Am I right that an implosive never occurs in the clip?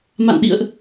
no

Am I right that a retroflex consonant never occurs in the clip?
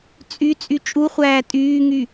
yes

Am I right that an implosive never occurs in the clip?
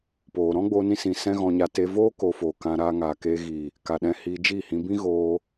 no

